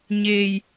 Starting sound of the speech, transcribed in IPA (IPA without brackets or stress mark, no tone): ɲ